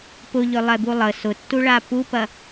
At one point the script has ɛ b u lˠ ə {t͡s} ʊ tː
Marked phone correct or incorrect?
incorrect